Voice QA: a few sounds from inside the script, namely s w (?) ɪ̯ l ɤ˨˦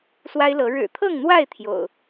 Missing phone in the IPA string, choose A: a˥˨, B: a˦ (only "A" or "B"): B